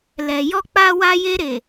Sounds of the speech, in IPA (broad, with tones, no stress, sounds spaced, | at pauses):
l ɛ˨ j ɔ˧ k͡p a˧ w a˧ j e˧ ɾ e˨